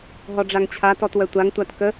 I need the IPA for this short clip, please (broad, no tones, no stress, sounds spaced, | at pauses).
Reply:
ɦ ɔ ɖ͡ʐ a ŋ t͡ɕʰ a t ɔ t w œ tʷ a ŋ tʷ a t k ə